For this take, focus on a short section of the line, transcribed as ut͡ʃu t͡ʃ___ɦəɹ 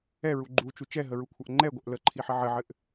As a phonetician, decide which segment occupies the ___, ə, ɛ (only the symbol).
ɛ